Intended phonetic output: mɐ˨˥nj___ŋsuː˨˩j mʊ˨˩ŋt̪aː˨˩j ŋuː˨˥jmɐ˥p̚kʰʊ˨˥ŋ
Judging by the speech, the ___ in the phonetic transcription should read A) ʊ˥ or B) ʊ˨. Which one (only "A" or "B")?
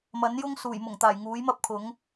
A